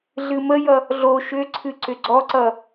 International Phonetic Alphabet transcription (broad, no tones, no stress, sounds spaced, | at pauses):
ɮ ɨ m ə j ʌ | ɮ o ʃ ʏ ǀʰ ɨ ǀ ʏ ɡ͡ǀ ɔ ǀ ʌ